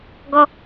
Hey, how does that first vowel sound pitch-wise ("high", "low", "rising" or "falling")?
high